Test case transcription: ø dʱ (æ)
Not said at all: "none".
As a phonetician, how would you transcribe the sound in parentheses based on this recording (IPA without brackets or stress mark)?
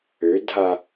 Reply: a